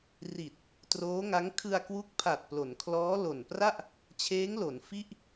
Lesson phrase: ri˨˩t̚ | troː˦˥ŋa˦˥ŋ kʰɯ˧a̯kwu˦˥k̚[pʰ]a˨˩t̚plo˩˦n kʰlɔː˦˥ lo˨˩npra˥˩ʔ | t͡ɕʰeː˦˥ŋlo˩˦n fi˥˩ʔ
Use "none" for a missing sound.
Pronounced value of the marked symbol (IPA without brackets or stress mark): pʰ